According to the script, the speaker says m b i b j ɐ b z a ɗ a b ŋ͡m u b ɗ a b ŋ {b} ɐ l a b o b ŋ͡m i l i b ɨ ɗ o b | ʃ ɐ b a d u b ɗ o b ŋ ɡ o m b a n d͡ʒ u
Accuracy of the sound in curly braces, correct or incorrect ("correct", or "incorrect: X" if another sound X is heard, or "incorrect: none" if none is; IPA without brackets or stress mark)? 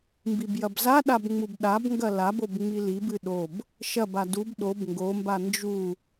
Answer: incorrect: ɡ